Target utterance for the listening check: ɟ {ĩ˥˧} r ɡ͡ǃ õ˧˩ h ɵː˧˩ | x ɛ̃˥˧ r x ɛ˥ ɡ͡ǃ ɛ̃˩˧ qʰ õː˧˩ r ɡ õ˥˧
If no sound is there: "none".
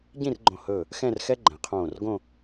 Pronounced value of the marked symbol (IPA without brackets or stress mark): ĩ˥˧